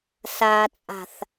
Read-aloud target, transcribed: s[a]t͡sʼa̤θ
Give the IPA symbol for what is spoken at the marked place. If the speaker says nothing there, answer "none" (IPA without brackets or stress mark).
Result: a